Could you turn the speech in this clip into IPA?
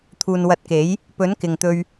t̪ʰuː˨nwɐ˨˥t̚ke˨˥j | pɵ˨˥nkɪ˨ŋt̪ɵ˧ɥ

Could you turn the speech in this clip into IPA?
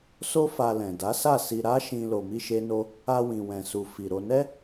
so˦fa˧lɛ̃˨ da˨˦sa˦˨si˧ ɾa˦ʃĩ˧ lo˧mi˦ʃe˦no˦ | a˧wĩ˨ wɛ̃˨su˨ fi˨ɾo˧nɛ˦

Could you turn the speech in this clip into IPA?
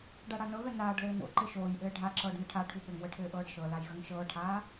ɖaɽanɤɣə naːɖlɘː no̰ ǃɘʃoːjʔɘː ɖʱa ǁɤːɖnəʈʰaʈʰu ɓɘŋwə ʈʰɘːʔɤːɖʃɤlaj ɣəŋʃɤːʈʰaː

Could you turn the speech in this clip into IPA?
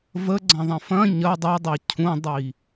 vəɡ͡ǀɐ̃ðˤə̃ fɐ̃ ɲɐ dˤidˤi cʰũdˤi

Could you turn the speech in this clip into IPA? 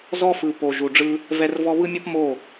zɔ˦fɯ˨po˨ ʒu˨ɖ͡ʐɯ˦ | vɛ˦rvɔ˦ βɯ˦mʲɔ˦p mo˦˨

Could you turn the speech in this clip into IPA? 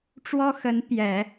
ʈ͡ʂwɔ˥xə˧˥n pjɛ˨˩˦

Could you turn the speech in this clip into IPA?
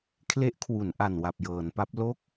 kʰle˦˥ʔkʰwu˩˦nʔa˨˩n wa˨˩p̚jɤː˩˦npa˦˥p̚ lo˦˥k̚

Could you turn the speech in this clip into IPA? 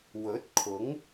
wɵ˨˥t̚kʰʊ˨˥ŋ

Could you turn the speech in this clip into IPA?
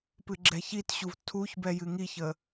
pɨɡ͡ǁɛçitɕuv tʰuçbɛ jɨŋiçə

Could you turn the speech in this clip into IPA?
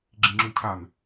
ɡ͡ǁĩŋ͡ǁʉ cʰan

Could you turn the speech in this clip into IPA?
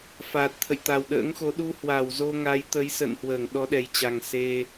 fa˨˩t̚t̪ʰə̰˧˨j t̪a˨˩wɗə̰ː˧˥ŋxo˨˦ ɗu˧hwa˧˩wzo˧ ŋa˨˦jt̪ə˨˦jsə̰ː˧˨n hwəː˧˩ŋɗɔ˨˦ɗɛ˨˩jt͡ɕa˨˩ŋ se˧

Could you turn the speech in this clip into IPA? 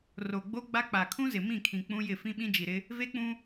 ro˨ɡ͡bo˦ɡ͡ba˦k͡pa˨ kʰũ˦zɪ˨mĩ˦˨kʰĩ˨ k͡pũ˦jɪ˦˨ fĩ˦ɓĩ˦d͡ʒi˨ɾɪ˦ | ve˦k͡pũ˦

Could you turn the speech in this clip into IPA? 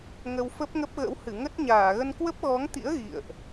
ŋə˧wfə˦˥p̚ŋə˦˥p̚ɣə̰˧˥w hɨ˧˩ŋə˦˥t̚ ɲaː˧˩ɣə˧nkwə˦˥p̚ ɣɔ˨˦ŋt̪ḭ˧˥ə̯ ɣḭ˧˨ə̯ʔ

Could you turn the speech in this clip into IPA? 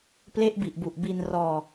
ple˦˥ʔbi˨˩ʔbu˨˩ʔ bi˧nrɔː˧

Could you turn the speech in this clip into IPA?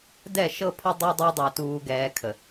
dɛ˦˨ʃɤ˦pʰə˦ dˤʊː˦dˤu˦dˤʊː˨tuː˨ ɡɛː˨ kʰə˨

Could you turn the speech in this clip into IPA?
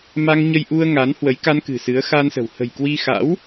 ma˧ŋɲə˧jʔu˧ə̯ŋa˨˦n hwə˨˦jka˧nkɨ̤˨˩ sɨ˨˦ə̯xa˧nsə̤˨˩w hə̤˨˩j kwi˧xa̰˧˥w

